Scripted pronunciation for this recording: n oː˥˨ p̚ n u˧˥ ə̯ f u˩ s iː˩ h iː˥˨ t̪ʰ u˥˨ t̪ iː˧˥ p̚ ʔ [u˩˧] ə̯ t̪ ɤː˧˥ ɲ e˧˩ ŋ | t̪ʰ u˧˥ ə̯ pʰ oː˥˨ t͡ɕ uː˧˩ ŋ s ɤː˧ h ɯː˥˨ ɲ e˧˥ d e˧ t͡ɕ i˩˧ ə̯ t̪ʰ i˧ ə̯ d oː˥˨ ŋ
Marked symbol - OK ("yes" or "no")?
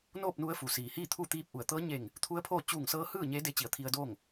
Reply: no